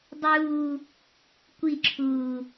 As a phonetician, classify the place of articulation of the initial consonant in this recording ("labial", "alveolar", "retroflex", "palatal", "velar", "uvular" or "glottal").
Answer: alveolar